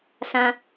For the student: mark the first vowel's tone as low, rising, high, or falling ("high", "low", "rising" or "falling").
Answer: high